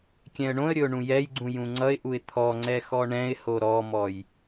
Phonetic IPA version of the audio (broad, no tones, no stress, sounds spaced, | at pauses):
kʲ ɛ̃ ə̯ ɳ õ ə̯ ɾʲ ɵ ʊ̯ ɳ ũ j ɛ j ɡ͡ǀ ũ j ũ ŋ͡ǀ ʌ ɪ̯ ʔ u ɪ̯ t̪ʰ ɔ ŋ͡ǀ ɛ x ɔ ɳ ɛ̃ ɪ̯ h o ɾ ɔ m ɔ j